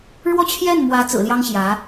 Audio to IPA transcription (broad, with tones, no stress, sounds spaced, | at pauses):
ɻ w ɔ˥˧ t͡ɕʰ j ɛ˥˩ n m w ä˧˥ t͡s ɹ̩˨˩ l j ɑ˥ ŋ ɕ j ä˧˥